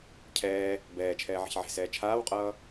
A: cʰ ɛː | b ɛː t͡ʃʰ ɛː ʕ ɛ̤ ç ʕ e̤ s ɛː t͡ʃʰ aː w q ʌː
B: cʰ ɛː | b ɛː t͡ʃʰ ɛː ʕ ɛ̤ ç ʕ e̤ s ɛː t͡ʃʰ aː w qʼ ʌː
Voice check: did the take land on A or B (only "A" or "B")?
B